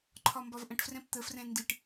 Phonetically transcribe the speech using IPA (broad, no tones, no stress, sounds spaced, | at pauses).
ǃʰ ɒ m b ɒ v ʔ ə̃ ʈ f r ɛ̃ p t̪ ə f r ɛ̃ n d i ʈ